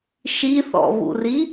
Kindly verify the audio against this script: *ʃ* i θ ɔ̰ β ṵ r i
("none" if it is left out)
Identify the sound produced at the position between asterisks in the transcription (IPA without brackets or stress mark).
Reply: ʃ